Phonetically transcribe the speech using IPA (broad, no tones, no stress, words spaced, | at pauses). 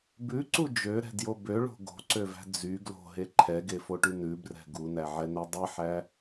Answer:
bʉǀu d͡ʒøɾɛ̤djo bøɭo̤ ɡo̤ǀøvæ̤ d͡zy ɡlo̤ɦe ǃʰɛɡefoʈy nʉbrɛ̤ ɡunæʕɛnɛ dˤiħæ